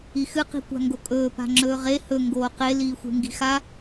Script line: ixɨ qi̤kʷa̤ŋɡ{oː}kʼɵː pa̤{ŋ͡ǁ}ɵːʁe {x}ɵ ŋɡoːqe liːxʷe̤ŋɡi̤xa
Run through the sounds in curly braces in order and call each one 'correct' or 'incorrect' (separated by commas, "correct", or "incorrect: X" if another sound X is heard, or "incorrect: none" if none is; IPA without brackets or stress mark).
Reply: incorrect: o, correct, incorrect: h